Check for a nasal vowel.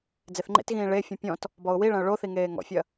present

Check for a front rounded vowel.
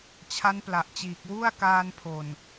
absent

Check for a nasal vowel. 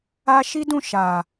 present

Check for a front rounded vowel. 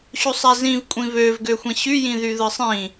present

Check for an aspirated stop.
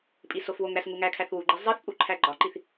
present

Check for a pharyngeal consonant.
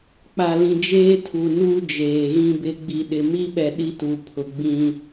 absent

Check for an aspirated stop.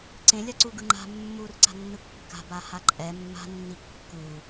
absent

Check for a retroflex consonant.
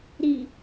absent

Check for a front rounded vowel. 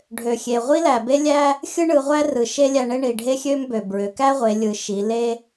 present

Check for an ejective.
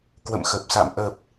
absent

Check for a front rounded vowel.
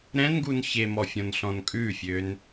present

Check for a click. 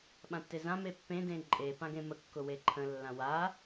present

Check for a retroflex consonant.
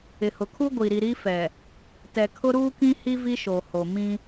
absent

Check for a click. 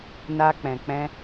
absent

